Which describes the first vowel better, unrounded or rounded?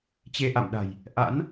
unrounded